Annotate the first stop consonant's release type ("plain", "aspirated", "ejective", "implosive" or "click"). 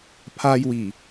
aspirated